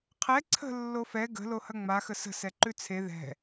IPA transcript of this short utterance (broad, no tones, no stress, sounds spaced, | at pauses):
qʰ ɛ ǀʰ ə̤ lː o f ɛ ɡ ə̤ l o h ɐ ŋ͡m a x ə s ə̤ s ɛ ǃ ʉ t͡sʰ e ð ɛ̤